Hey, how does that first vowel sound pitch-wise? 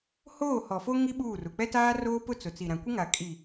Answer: falling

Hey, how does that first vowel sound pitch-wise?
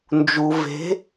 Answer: low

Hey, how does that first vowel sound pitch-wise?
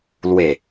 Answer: low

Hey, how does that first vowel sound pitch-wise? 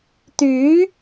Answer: rising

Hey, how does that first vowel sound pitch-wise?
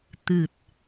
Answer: low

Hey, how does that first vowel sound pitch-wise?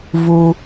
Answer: low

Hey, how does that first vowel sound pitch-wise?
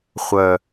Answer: low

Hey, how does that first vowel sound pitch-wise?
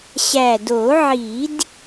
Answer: low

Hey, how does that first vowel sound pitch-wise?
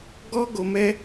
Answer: high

